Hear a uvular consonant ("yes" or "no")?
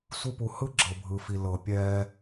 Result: no